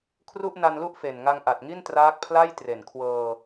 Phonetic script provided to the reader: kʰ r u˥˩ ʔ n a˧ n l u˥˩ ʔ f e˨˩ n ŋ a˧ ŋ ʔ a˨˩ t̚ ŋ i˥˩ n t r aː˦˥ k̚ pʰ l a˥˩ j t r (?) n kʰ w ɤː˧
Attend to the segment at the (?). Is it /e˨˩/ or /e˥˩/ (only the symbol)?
e˨˩